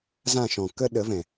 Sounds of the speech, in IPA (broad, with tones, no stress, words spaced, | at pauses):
zã˦˨ʃɔ̃˨ kə˦ ɗə˨˦vɛ̃˨